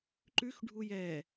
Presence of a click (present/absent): present